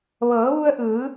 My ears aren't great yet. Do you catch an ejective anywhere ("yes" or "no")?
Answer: no